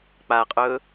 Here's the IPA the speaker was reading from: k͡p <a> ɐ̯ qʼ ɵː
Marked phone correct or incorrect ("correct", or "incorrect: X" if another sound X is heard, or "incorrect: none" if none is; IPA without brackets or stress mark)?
correct